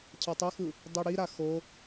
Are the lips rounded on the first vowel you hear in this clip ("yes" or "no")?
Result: no